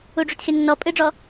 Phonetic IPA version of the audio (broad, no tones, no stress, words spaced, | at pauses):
uɖ͡ʐutxʲʌnːɔ pʼɨɖ͡ʐɔ